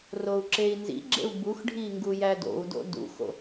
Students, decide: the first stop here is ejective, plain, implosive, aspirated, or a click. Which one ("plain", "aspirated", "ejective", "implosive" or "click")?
click